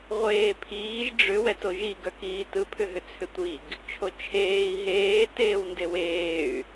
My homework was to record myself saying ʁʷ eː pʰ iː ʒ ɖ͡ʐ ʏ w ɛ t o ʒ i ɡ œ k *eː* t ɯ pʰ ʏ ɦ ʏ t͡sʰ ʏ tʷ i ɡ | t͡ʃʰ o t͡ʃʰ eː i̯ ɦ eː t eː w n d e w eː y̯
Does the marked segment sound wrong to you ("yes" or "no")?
yes